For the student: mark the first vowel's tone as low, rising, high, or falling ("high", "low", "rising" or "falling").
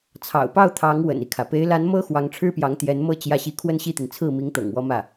low